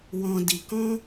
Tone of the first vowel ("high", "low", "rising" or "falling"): low